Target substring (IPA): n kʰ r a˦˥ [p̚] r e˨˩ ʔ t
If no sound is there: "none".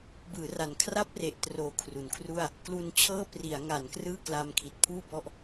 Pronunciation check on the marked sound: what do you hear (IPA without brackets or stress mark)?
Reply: p̚